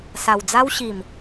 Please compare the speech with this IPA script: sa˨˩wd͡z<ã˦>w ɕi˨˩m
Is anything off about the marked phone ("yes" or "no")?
yes